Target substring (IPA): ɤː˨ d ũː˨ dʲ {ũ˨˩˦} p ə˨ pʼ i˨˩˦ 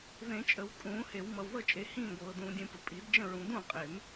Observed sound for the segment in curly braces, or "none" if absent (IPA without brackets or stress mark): ũ˨˩˦